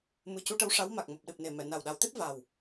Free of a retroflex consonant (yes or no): no